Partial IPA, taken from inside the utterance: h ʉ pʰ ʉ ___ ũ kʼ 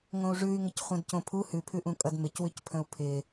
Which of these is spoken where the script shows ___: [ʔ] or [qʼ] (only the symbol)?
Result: ʔ